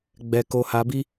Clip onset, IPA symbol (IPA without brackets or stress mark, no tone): ɡ͡b